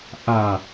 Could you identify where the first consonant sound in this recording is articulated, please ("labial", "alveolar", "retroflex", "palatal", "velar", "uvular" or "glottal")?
glottal